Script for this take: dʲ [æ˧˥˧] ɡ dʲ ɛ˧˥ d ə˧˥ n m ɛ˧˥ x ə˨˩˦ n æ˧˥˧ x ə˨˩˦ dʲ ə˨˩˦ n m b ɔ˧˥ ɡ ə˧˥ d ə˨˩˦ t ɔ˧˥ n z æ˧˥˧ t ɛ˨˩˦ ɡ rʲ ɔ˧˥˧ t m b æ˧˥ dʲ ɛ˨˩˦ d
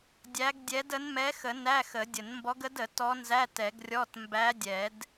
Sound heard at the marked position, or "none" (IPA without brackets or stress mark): æ˧˥